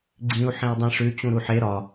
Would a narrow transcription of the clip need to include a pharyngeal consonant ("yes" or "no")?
yes